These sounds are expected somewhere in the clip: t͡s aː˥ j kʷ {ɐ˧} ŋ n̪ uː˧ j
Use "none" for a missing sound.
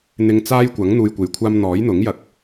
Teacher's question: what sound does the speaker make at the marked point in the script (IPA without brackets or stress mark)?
ɐ˨˥